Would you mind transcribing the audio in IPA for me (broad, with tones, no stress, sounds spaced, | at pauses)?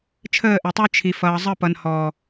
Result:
t͡ʃʰ əː˦˨ ʔ ɛ˨ tˤ ə˞˦ t͡ʃʰ i˨ f ʌː˨ zˤ ə˦˨ p ʌ˨ n h ɔː˨